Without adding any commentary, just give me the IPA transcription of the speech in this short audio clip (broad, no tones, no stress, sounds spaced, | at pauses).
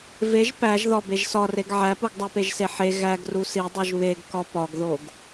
v e ʒ p æ ʒ ð ɒ b e ʒ s ɒ r e ɡ ʕ æ p u ɡ dˤ æ p e ʒ s e ħ e ɣ æ ɡ r u s i dˤ u ʒ β e ɡ k ɒ p ɒ ɡ ð o ɡ